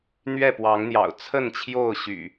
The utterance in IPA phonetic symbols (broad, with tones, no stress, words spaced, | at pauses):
n̪ɥɛ˥˨pwɑ˨˦ŋn̪jɑ̰˨˩ʊ̯ t͡sʰə˥˨nt͡ɕʰjo˥˨ʊ̯ɕy̰˨˩